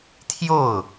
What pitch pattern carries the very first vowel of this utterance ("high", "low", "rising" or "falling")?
falling